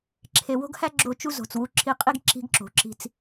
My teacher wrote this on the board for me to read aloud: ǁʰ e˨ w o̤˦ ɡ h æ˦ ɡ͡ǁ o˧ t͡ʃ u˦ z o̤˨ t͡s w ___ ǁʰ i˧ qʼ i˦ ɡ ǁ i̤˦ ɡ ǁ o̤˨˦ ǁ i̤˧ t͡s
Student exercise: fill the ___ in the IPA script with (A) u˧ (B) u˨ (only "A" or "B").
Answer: A